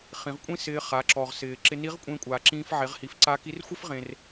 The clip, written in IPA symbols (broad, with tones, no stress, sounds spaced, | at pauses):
χ ĩ˩˧ ʁ kʷʼ ĩ˥ s ɪː˧ χ a˩˧ ǁ ɔ˩ ʁ s ɪː˩ ǁ ɪ˧ n i˧˥ ʁ kʷʼ ẽ˧ kʷʼ aː˩ ǁ ĩː˧ f ʕ e˩˧ ʁ h i˩˧ f ǀ a˧˥ k i˧˥ r xʷ ɪ˥ f ʁ ẽ˩ r